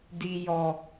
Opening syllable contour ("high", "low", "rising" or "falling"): low